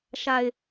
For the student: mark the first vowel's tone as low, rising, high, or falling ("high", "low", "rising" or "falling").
low